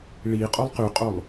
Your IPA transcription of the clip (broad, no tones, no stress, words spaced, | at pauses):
ɭi qʼolˠqyqʼolˠ